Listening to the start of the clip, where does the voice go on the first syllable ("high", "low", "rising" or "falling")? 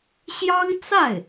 high